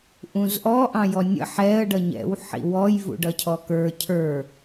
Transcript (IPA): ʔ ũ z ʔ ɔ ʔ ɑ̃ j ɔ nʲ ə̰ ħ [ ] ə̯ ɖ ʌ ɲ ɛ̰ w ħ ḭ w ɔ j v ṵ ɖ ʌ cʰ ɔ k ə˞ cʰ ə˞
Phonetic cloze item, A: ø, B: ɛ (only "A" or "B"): B